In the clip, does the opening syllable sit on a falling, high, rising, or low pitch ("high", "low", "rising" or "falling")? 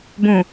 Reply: low